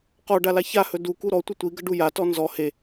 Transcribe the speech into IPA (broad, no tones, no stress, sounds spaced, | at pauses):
q ɔ ɖ a l a ç a h ɵ d u k u ɾ ɔ tʷ ə tʷ i ɡ ə ɖ u j a t ɔ n z ɔ h e